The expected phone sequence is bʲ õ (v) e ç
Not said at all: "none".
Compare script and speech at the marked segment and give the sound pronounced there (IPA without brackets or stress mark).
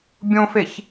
f